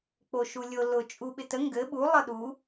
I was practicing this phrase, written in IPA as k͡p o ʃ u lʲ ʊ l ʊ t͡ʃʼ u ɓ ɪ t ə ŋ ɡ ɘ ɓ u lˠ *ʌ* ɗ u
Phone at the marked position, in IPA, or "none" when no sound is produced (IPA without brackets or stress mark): ʌ